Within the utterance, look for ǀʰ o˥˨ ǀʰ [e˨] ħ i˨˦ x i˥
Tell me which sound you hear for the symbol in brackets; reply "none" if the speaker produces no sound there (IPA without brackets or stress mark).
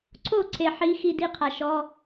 e˨